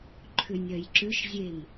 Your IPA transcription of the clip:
ǃʰ ʏ nʲ ɜ j ǁ ʏ ʃ zʲ e m

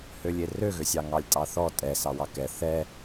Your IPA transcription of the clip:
h ø lʲ e r ø ɣ ø sʲ ɑ ŋ ɑ lʲ tʼ ɑ θ ɔ tʼ ɛ s ɑ w ɑ k ɛ θ ɛ

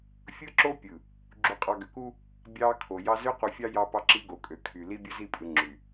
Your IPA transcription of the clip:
fʲ ɯ˦ ǁ o˦ pʲ ɯ˨ | ɡ͡ǁ u˨ qʼ ɑ˨ ɡ ø˨ k u˦ | bʲ ɑ˨ kʰ o˨ j ɑ˦ z ø˦ q u˨ fʲ ɑ˦ j ɑ˦ p ɑ˦ ǁ i˦ ɡ o˨ kʼ ø˨ kʰ y˨ l i˦ bʲ ɯ˦ z i˦˨ pʼ ɯ˨ ŋ͡ǁ y˨

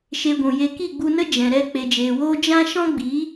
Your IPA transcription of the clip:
ʃ e˧ ɡʷ ũ˨ j e˧ k i˦˨ ɡ͡b u˧ n ə˦ d͡ʒ ɛ̃˨ ɾ ɛ˧ k͡p e˨ d͡ʒ eː˨ w oː˦ d͡ʒ ã˦ ʃ ɔ̃˦ ɡ͡b i˨˦

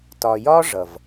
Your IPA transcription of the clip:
t ɒ˨ j ɒ˦ ʐ ʌ˨ v

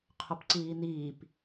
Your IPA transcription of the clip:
qʰ o p ǀ iː n̪ iː p

